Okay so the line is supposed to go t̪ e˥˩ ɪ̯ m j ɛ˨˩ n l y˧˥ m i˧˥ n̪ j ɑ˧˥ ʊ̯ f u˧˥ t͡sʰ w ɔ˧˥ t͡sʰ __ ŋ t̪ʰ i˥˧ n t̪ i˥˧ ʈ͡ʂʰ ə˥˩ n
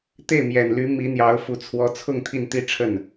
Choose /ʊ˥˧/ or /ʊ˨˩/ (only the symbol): ʊ˥˧